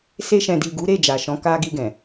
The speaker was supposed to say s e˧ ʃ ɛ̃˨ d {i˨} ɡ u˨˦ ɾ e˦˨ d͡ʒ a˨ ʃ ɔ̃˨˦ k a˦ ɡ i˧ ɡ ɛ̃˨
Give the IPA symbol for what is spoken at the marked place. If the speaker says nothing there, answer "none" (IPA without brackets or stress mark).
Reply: i˨